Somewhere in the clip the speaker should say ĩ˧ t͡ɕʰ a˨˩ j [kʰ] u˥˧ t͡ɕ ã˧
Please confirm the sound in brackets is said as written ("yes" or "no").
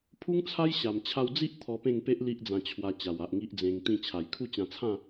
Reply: yes